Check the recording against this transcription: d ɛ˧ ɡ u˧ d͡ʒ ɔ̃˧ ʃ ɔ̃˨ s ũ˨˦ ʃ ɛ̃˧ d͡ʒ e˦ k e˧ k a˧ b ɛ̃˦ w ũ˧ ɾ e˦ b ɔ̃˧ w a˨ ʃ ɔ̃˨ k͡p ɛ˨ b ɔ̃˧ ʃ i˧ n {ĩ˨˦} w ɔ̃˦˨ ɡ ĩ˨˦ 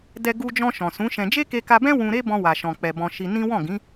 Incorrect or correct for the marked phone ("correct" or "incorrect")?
incorrect